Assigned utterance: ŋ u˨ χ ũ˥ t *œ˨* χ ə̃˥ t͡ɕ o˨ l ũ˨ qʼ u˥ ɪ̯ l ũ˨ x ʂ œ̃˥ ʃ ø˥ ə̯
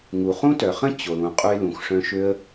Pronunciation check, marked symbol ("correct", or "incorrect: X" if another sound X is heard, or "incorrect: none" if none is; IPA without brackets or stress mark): correct